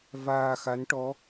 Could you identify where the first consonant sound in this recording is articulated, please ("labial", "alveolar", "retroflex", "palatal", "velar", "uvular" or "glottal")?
labial